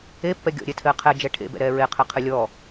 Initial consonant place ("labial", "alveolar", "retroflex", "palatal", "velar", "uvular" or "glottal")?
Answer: labial